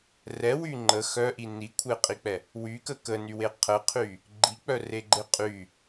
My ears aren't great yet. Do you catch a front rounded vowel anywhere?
yes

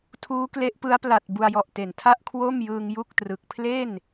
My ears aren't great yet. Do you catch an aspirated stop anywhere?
yes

